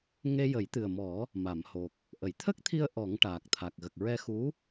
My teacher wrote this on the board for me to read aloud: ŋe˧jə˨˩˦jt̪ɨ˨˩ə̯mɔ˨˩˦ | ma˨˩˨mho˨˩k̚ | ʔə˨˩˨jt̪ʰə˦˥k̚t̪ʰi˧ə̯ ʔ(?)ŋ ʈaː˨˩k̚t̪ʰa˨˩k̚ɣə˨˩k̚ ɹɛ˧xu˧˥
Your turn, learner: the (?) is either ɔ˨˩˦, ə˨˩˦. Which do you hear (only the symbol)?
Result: ɔ˨˩˦